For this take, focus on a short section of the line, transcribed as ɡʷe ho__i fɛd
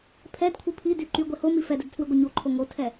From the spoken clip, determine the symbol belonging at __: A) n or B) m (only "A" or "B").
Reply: B